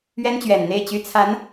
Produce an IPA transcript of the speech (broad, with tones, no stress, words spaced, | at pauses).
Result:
ɥɛ˥nt͡ɕɥɛ˨˩nn̪e˥˩ɪ̯t͡ɕy˥ t͡sʰa˧˥n